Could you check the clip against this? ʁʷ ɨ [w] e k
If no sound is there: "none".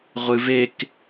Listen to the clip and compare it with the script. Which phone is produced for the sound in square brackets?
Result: v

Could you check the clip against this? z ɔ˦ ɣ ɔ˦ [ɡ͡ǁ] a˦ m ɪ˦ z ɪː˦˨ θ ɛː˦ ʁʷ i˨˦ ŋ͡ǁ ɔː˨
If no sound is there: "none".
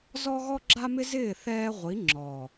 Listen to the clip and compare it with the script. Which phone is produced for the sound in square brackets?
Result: ɡ͡ǁ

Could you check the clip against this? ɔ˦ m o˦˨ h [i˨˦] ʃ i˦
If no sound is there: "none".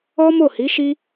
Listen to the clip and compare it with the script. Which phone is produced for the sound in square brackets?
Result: i˨˦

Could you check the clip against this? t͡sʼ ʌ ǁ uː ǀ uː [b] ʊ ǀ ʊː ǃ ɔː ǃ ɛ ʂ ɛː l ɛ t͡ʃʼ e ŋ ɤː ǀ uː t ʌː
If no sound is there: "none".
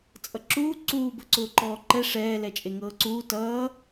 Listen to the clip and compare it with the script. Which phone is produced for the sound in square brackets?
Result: b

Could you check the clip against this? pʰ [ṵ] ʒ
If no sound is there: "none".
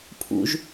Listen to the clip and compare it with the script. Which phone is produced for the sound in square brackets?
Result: ṵ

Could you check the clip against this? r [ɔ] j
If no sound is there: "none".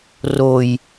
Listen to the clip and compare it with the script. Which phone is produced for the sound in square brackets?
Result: o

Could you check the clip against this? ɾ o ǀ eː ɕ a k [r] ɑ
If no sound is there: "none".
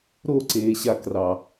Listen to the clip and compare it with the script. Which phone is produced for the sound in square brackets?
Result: r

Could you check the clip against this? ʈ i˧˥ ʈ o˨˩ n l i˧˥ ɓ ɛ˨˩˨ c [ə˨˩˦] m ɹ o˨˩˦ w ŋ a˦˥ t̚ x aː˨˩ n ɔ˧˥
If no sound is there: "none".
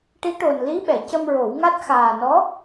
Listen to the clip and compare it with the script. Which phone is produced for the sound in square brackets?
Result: ə˧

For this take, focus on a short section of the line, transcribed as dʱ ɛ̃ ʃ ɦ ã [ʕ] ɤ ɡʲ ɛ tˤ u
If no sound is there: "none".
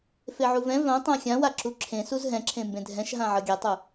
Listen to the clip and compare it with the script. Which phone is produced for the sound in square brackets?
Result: ʕ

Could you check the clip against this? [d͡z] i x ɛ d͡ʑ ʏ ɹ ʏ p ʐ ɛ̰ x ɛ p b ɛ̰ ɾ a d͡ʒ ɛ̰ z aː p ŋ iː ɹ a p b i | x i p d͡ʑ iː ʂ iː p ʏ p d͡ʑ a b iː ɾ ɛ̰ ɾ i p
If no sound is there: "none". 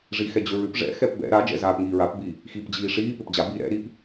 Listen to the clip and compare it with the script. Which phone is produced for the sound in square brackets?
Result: ʐ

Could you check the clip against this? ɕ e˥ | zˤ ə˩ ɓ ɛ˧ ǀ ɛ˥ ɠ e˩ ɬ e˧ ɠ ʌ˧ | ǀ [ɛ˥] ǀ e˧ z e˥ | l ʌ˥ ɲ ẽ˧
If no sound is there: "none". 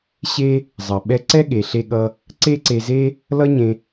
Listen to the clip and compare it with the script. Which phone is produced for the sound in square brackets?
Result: e˥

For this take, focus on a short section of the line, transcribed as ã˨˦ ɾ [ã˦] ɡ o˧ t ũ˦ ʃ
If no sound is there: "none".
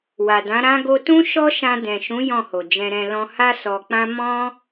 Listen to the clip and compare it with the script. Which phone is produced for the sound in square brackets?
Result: ã˦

